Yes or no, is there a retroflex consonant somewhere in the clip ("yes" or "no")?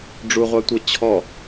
yes